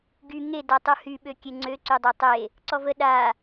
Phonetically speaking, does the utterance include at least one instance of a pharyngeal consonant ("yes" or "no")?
no